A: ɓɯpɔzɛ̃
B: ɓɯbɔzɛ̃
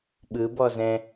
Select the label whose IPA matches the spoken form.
B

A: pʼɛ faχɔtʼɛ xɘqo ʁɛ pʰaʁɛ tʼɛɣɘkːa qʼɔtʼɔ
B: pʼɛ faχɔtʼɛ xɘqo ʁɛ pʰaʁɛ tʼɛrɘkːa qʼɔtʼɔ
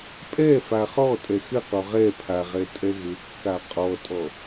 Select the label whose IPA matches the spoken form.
A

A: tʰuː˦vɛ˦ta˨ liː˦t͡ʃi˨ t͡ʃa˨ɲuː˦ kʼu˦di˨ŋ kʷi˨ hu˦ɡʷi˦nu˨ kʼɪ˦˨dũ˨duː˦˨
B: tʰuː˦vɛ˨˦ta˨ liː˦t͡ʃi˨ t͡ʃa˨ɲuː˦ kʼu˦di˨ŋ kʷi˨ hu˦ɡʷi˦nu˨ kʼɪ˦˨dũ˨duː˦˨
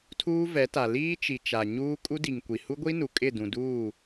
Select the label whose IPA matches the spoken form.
B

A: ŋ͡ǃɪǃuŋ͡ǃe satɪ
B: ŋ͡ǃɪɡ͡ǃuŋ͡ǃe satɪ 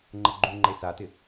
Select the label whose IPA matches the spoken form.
B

